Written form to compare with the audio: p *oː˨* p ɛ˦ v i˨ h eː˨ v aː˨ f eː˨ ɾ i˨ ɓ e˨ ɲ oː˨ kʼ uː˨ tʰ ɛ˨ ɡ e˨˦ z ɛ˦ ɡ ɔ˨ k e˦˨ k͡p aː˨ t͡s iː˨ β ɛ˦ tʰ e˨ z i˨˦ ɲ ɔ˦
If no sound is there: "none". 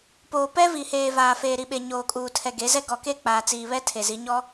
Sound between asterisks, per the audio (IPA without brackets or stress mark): oː˨